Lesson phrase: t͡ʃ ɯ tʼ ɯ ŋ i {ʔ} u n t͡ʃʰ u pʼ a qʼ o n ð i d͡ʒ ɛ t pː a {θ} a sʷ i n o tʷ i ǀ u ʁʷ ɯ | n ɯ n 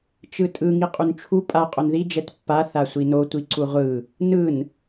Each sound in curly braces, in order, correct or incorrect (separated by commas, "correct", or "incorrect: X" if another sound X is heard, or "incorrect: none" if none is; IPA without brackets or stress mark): incorrect: qʼ, correct